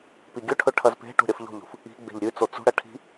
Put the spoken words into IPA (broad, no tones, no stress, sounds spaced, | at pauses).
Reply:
p i ɡʲ ɵ ʈʰ ɵ ʈʰ ɐ z p e̤ ʈ ṳ ɾʲ ɐ f ʎ o̤ ʎ ṳ f | i̤ ɡ͡b e̤ ʎ ɾʲ ʉ t͡s o t͡s ṳ ɽ ɐ ʈʰ i̤